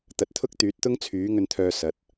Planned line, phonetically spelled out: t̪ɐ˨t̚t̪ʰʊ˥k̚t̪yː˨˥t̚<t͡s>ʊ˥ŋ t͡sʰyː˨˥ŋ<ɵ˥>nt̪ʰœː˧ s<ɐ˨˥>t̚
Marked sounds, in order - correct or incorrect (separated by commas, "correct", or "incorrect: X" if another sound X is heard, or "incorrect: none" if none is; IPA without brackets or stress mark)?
incorrect: t̪, incorrect: ɵ˧, correct